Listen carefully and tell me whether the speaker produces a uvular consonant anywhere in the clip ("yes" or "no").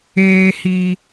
no